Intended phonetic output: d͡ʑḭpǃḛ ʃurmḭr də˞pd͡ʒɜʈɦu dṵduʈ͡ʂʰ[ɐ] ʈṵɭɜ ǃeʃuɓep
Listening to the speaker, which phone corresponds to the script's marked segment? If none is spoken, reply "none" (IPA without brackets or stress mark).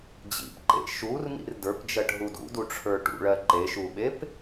ə˞